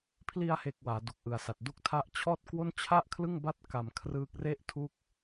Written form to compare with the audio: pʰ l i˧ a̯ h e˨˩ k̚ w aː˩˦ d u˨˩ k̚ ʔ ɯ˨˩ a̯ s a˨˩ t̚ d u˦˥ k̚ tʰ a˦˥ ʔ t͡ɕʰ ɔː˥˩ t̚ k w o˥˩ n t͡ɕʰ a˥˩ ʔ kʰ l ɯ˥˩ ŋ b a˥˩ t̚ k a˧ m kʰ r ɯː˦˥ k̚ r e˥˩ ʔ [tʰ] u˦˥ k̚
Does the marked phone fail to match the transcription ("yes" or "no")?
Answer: no